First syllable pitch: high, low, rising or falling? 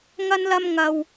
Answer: high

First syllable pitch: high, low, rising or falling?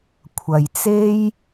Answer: low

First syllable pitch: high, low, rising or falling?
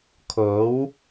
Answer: rising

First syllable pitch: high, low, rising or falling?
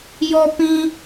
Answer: high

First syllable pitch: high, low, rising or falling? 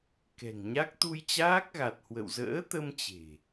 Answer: low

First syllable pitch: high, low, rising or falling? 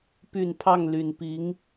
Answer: low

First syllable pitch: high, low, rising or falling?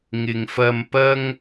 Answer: low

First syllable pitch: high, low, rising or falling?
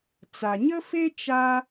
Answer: low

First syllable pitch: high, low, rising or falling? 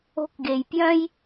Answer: high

